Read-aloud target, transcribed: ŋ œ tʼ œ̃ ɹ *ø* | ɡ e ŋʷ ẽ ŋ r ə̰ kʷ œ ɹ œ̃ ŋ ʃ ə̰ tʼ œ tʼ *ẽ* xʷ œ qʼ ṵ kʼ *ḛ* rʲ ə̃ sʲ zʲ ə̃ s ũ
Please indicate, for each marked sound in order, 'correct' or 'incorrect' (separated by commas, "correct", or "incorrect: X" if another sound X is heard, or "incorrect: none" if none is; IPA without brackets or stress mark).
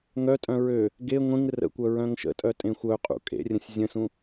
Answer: correct, correct, correct